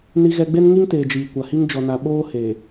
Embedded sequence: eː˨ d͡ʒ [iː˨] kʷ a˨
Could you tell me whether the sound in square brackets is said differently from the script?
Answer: no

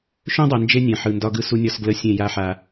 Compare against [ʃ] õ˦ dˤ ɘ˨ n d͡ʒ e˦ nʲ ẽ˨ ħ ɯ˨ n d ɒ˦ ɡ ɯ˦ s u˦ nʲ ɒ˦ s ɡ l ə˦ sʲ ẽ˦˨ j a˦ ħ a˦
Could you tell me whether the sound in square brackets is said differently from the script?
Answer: no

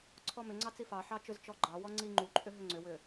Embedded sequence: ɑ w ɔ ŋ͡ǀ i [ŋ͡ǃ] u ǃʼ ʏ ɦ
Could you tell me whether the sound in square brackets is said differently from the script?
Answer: no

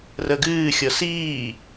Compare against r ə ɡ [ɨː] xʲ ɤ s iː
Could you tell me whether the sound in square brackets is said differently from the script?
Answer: no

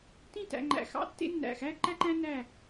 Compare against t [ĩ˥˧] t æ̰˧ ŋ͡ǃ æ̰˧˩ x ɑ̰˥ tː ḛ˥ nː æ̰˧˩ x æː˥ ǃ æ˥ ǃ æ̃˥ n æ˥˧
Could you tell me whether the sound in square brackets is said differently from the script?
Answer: no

